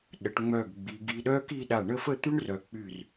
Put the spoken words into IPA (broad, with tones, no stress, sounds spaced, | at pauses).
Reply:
ɗ ə˩˧ ʈ ŋ͡m œ˧˩ ɡ ɡ͡b i˩˧ ɡ i˧ ɗ œ˥ k i˥˧ ɗ a˧˩ ɳ ə˥˧ f ə˥˧ t̪ y˥ ɳ r œ˩˧ k͡p y˧˩ r